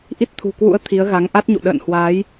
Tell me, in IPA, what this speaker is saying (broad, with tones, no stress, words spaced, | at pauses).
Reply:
ʔi˦˥t̚t̪ʰṳ˨˩kwṵ˧˥ə̯ t̪ʰi˨˦ə̯ ɣa˨˦ŋʔa˦˥t̚ɲṵ˧˨ ɗə̰ː˧˨nhwaː˨˦j